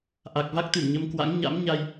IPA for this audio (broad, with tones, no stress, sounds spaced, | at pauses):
ʔ a˨˩ k̚ v a˦˥ k̚ t̪ ɨ˧˩ m ɲ ə˧ m k w a̰˧˥ ŋ ɲ a̰˧˥ m ɲ a˧ j